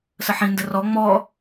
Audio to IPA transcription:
s ə ħ ĩ n d ə r ɔ ŋ͡m ɔ

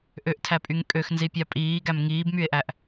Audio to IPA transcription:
ʔ ø ʔ tʰ æ pʼ y ŋ kʼ ø x n z i pʲ ɑ pʼ iː ɡ æ m ŋ iː b m y e̯ ʔ æ ʔ

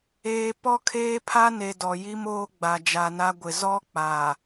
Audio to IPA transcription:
eː˨ p ɔ˦ kʰ eː˦ pʰ a˦ n e˨ d ɔ˨ j i˦ m oː˦ ɡ͡b a˨ d͡ʒ a˨ n a˦ ɡʷ ɪ˨ z ɔ˦ k͡p a˨

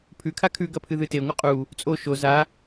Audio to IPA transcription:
pʰ ʉ kʰ a kʰ ʉ ɡ ɐ pʰ ɨ ð ɨ t e ŋʷ ɨ qʼ u | t͡sʼ o ʃ o z a

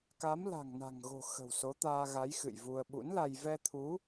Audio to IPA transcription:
k a˨˦ m l a̤˨˩ ŋ n a̤˨˩ ŋ ɣ o̤˨˩ x ə̤˨˩ w s o˨˦ t̪ aː˧ ɣ a˨˦ j x ɨ̰˧˨ j v u˧ ə̯ ɓ ṵ˧˥ n l a˧ j v ɛ˧ t̪ʰ u˨˦

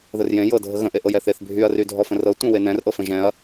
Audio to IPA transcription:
ð ə r j ẽ j ɤ dʱ ə ɣ ə̃ ʔ e ʔ ɤ j ɛ θ e θ bʱ y ɐ̯ r y dʱ ɔ f ə̃ r ɤ tʷ ɛ̃ w e n ɛ̃ r ʔ ɤ f ə̃ ʒ ɛ̃ ɐ̯

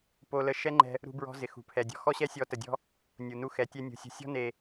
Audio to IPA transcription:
p o˦ l ə˦ ʃ ɛ˦ ŋ͡ǃ ɛ̤˦ | ɾ ṳ˦ b ɹ ɔ̤˦ z ɪ˨ x ṳ˨ pʰ ɛ˨ dʲ ɔ̤˦ x ɔ˦ ɕ ɛ˦ sʲ ɔ˨˦ t ə˨ dʲ ɔ̤˦ | nʲ u˨ n u˦ x ɛ˨ tʲ ɛ˦ nʲ ṳ˨ sʲ ṳ˨ sʲ ɔ̤˦ n e˨

